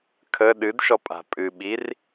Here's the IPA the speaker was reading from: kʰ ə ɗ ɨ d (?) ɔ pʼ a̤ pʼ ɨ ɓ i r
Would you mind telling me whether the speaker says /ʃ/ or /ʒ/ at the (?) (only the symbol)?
ʃ